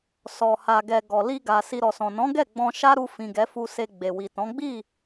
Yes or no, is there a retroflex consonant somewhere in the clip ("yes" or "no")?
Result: no